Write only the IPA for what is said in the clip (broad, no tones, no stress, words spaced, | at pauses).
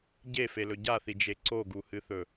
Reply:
ɟefelɵ ɟaθid͡ʒe ǀoɡuhɨθɵ